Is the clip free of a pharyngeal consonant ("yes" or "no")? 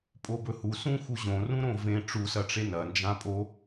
yes